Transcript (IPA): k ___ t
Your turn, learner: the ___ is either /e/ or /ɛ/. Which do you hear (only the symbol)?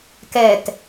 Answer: ɛ